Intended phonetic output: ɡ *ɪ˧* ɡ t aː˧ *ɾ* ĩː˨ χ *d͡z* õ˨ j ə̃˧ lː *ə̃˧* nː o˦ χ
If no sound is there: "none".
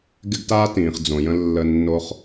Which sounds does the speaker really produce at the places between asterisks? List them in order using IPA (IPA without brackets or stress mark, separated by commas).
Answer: ɪ˧, t, d͡z, ə˧